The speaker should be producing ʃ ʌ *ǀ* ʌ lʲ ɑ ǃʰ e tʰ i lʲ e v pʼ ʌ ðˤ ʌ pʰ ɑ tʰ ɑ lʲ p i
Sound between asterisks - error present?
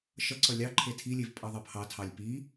no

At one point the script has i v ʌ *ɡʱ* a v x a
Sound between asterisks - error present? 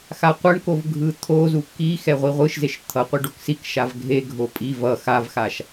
yes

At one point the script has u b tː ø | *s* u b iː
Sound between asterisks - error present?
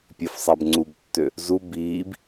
yes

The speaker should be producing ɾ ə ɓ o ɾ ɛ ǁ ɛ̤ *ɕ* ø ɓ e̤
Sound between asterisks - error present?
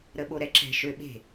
yes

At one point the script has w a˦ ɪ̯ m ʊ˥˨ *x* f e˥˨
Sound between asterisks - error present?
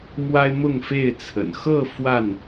yes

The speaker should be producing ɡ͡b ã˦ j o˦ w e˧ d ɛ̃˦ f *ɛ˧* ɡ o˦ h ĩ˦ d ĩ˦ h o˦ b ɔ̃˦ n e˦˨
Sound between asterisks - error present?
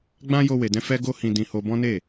yes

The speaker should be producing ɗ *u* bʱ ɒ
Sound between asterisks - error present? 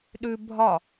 yes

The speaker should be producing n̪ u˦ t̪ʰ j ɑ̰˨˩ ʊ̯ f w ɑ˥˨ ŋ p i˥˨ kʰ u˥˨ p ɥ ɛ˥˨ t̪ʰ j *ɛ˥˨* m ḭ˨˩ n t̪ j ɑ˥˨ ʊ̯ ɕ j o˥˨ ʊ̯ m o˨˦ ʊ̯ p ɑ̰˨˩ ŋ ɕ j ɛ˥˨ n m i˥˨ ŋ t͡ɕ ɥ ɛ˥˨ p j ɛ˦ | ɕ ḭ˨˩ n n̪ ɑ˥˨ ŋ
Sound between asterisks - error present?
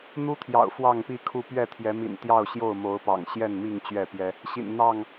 yes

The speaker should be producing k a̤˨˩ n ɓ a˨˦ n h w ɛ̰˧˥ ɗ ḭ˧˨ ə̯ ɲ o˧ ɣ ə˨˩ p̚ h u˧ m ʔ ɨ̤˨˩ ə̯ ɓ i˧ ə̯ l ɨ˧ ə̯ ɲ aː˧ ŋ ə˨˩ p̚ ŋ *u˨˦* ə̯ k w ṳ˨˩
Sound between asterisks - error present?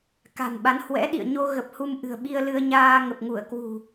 yes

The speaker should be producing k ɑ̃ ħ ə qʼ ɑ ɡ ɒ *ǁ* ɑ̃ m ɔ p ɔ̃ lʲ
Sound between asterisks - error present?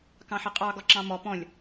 no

